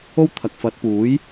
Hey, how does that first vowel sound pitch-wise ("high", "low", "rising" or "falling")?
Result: high